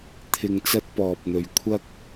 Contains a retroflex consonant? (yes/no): no